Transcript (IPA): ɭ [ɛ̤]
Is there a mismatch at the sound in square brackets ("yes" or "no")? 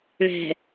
no